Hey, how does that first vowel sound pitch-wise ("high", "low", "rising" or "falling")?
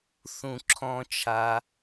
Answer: low